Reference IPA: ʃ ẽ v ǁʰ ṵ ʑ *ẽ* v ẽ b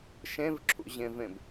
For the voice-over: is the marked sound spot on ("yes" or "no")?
yes